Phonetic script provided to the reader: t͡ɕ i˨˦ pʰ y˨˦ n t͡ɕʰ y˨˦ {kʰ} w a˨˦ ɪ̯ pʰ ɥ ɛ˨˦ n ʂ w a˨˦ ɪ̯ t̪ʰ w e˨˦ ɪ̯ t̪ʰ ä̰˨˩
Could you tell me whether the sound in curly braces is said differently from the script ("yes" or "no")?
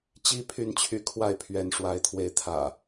no